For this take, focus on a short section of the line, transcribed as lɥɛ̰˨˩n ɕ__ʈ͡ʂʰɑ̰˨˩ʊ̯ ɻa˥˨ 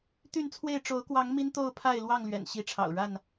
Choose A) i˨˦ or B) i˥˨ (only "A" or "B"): A